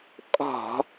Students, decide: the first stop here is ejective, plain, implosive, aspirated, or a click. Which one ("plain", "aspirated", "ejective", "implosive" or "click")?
ejective